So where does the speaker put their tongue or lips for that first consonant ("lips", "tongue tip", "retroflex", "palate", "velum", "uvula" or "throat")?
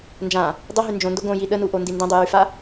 tongue tip